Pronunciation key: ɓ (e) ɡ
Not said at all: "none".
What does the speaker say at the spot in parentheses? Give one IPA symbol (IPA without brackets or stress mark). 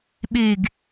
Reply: e